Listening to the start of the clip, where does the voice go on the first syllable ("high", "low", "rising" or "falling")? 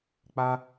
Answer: high